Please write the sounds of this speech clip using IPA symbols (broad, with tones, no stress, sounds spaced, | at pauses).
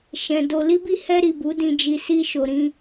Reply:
ʃ ɛ̃˨ d o˧ l i˦ b i˦ h ɛ˧ ɾ i˨ b u˨˦ d ĩ˧ d͡ʒ i˧ s i˧ ʃ o˨ ɾ ĩ˧